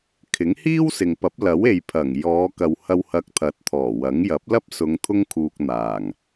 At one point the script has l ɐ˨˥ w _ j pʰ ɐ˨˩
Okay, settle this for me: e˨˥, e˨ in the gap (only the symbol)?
e˨